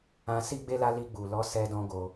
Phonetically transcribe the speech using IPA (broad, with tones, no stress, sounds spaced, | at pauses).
ã˧ s i˦ ɡ͡b e˦ l a˦ l i˧ ɡ͡b u˨ l ɔ˨˦ s ɛ˧ d ɔ̃˧ ɡ o˧